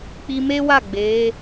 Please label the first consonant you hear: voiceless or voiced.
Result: voiceless